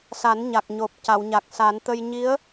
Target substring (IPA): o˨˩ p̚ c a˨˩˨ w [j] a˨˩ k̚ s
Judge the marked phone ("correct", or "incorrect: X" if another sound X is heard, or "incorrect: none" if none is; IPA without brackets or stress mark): incorrect: ɲ